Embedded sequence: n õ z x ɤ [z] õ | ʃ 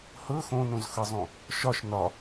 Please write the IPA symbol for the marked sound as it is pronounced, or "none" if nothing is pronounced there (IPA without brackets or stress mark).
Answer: zˤ